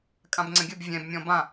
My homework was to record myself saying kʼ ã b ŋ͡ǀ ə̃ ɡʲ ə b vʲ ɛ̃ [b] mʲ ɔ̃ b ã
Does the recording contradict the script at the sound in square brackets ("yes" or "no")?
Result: no